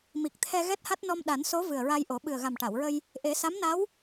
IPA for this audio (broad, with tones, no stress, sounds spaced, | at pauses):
m i˨˩ k̚ t̪ʰ ɛ˧ ɣ ɛ˦˥ t̚ h a˦˥ t̚ n ɔ˧ m ɗ a˨˩˦ n s o˧˥ v ɨ˨˩ ə̯ ɹ a˧ j ʔ o˨˩˦ ɓ ɨ˨˩ ə̯ ɣ a˨˩ m ʈ a˨˩˨ w ɹ ə˧ j | ʔ e˨˩˦ s a˧˥ m n a˧˥ w